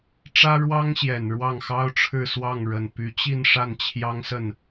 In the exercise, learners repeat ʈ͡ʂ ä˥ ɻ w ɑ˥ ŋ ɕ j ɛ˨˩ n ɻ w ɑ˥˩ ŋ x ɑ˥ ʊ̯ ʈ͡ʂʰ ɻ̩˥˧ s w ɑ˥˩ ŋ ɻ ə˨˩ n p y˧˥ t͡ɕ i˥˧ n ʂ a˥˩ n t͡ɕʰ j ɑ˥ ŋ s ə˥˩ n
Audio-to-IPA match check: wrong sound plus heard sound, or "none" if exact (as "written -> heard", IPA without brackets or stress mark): none